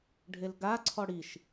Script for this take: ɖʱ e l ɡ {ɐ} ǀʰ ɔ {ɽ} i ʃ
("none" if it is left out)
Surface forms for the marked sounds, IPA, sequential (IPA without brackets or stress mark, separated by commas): a, ɽ